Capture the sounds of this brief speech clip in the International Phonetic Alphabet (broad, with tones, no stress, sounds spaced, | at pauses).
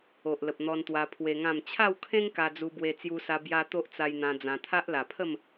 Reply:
o˨ ʔ l ə˨ p̚ n̪ ɔ˧ n t̪ w a˧ pʰ w e˧ ŋ ã˥˧ m t͡ɕʰ a˥˧ w kʰ ẽ˦ ŋ k a˧ d͡z u˧ b w e˧ t͡s j u˧ s a˧ b j a˦ t̪ o˦ ʔ t͡s a˧ j n̪ ã˧ d͡z ã˧ t̪ʰ a˦ ʔ l a˨˩ pʰ ə˥˧ m